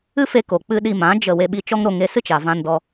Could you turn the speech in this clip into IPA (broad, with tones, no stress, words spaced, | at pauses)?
ɨ˦fe˧ko˨k͡pɨ˧ ɗi˧mã˨˦ d͡ʒə˦˨ we˧ɓi˧t͡ʃɔ˦ŋɾo˧ ŋe˧sɨ˦ t͡ʃa˨vã˧ndɔ˧